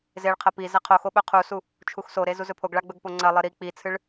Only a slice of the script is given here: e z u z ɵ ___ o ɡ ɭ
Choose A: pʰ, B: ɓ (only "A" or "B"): A